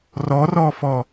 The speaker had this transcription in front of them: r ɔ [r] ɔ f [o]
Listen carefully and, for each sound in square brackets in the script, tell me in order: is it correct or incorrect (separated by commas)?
correct, incorrect